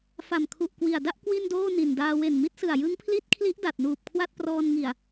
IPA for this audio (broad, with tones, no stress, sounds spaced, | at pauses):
f a˨˩ m kʰ u˨˩ ʔ k w i˨˩ a̯ d a˥˩ ʔ k w i˥˩ n d oː˥˩ n i˨˩ n d aː˧ w e˨˩ n m i˦˥ t̚ s ɯ˨˩ a̯ j ɯ˦˥ ŋ pʰ l i˦˥ t̚ kʰ l i˦˥ ʔ d a˨˩ t̚ n uː˨˩ p̚ kʰ w a˥˩ t̚ p r ɔː˧ n ŋ i˨˩ a̯